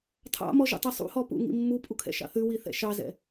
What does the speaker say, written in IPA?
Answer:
tʰɑ̰mɔʒṵtˤi sˤṵhɔpṵŋḭ mːupʼukʰɛ̰ʃɑ̰ θʉwiθɛ̰ ʃɑzɛ̰

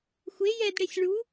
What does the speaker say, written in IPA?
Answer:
xʷe jɛdɽesʲ ɭu

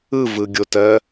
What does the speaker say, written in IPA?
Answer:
ɯvɯɡʲotɜ

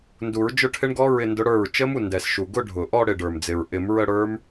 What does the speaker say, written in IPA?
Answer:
ndu˨˩˦ɹd͡ʒʊ˥˧ʈʰɪ˦˥ɳɡɔ˦˥ ɹɪ˥˧ndʊ˦˥ɽə˞˥˩ɹ t͡ʃə˦˥mu˥˩ndɛ˨˩sʃu˨˩ ɡʊ˥˧ɖʱʊ˨˩ʔɔ˥˧ ɽɪ˥˩ɖə˞˨˩md͡zɪ˨˩ɹ ʔɪ˨˩˦mɹə˥˧ɽə˞˦˥m

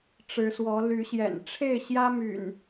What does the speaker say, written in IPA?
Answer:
ʈ͡ʂɻ̩˨˦swɔ˨˦ly˨˦ɕjɛ̰˨˩n ʈ͡ʂʰe˥˨ɪ̯ɕjä˦my̰˨˩n

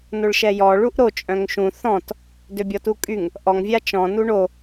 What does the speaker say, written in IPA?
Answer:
noɭʃɛjɔ ɭuʔɾo t͡ʃʼœ̃ŋʃũ θɔ̃t | døbʲɔtukʼyŋ | ʔɔŋvʲa t͡ʃɔ̃ nuɳo

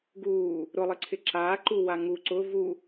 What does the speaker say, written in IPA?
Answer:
ɡuː | ɾʊlˠɪǀʰɪ ǁaːǃuwa ŋu ǀʊ vu

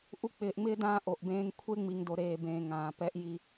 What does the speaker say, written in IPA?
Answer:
ʔu˨ k͡pɪː˨ʔŋ͡mɪː˦ dãː˦ʔo˨ʔbẽː˦ŋ kʷʰe˦ŋ͡mi˨ŋdo˨ ɾeː˨bẽː˨ ŋãː˨pɛ˦ʔji˦

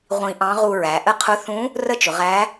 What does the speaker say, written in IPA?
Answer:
ʁʷĩ˧ʔɑ̃˧˥ ʁu˧ɹæ˩˧ʔə˥ qʰʊ˧˥θũ˧˥ | rə˥t͡ʃʊ˩˧ʁæ˧˥

